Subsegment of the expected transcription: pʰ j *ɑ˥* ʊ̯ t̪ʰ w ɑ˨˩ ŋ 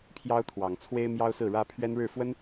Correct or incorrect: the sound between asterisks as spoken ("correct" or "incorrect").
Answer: correct